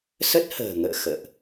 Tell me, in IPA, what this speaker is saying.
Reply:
s ə˦˥ t̚ h ə̤ː˨˩ ŋ ə̰ː˧˨ x ə̰ː˧˨ ʔ

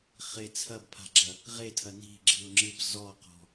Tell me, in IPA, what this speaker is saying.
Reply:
χ e t͡sʰ ɐ b pʰ a̤ ɡ͡ǁ ɐ | ʁ e tʰ ɐ n i̤ ɡ͡ǁ ɨ ʊ̯ ŋ͡ǁ ɨ b z ɔ q ɔ̤

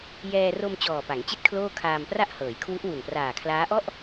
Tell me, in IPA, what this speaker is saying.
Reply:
j ɛː˧ r o˧ m t͡ɕ ɔː˨˩ p a˩˦ ŋ t͡ɕ i˥˩ t̚ kʰ l oː˥˩ kʰ aː˧ m p r a˥˩ ʔ h ɤː˩˦ j kʰ w u˦˥ ʔ w u˨˩ n p r aː˨˩ kʰ l aː˦˥ ʔ ɔ˥˩ ʔ

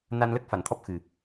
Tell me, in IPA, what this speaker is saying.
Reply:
n a˧ n l ə˦˥ k̚ f a˨˩˨ n t̪ʰ ɔ˦˥ p̚ x ɨ˨˩

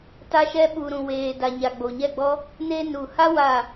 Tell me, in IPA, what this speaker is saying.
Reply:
t a˧ ʃ ɛ˧ ɓ u˨ ɾ ũ˨ w eː˨ d a˨ ɲ a˨ ɡ͡b o˨ ɲ ɛ˦˨ ɡ͡b ɔ˦ | n e˧ n u˨ h a˦ w a˦˨

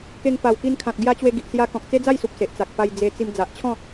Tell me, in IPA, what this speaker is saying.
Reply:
k e˧ ŋ p a˨˩ w k i˧ n kʰ ã˨ t̚ ɡ j a˧ t͡ɕ w e˧ ɡ i˨ ʔ s j a˧ k ɔ̃˨ k̚ t͡s e˦ d͡z a˥˧ j s u˨ p̚ s e˨ ʔ t͡s a˨ k̚ p a˧ j d͡z e˧ t͡s i˧ m d͡z a˨ ʔ t͡ɕʰ ɔ̃˥˧

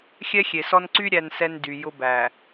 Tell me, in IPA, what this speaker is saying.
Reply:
xʲ ɛ˦ xʲ e˨ s ɔ˦ n ǀ y˦ ɾʲ æ˨ n s ɛ˨ n d y˨ j ʊ˦ b æ˨

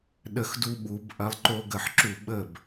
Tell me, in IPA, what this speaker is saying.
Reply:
ɗ ə˨˩˦ x d u˧ ɓ u˨˩˦ b ʔ ɐ˧ lˠ ǃ o˧ ɡ ə˧˩ ħ ǁ u˧˩ ɓ ə˧˩ b

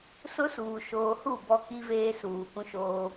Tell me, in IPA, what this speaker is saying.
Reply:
s ʊ˦ s uː˨ ʃ oː˨ h u˦˨ b ɔ˦ k i˦ v eː˦ s uː˨ k ũ˦ ʃ oː˦

